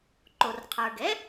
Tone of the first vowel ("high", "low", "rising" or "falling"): low